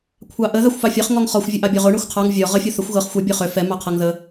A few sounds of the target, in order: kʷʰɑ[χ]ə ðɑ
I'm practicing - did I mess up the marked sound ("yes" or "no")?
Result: yes